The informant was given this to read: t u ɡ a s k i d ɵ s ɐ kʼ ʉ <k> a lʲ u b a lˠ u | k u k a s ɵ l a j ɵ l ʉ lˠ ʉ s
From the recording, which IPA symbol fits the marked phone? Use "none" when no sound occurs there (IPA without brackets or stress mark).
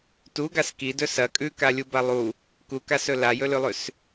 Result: k